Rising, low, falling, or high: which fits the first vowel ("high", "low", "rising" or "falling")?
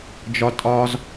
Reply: high